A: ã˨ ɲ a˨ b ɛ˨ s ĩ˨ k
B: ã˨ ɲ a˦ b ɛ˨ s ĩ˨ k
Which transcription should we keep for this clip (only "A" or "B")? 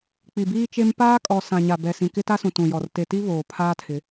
A